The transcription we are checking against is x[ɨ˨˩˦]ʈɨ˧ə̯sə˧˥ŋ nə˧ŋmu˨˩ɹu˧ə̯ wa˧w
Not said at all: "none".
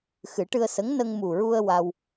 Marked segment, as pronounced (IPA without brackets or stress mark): ɨ˨˩˦